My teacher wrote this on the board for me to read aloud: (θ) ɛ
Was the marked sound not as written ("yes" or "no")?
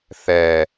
no